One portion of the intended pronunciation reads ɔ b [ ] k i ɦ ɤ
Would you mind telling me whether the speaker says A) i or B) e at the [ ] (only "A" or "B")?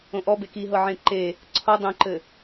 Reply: B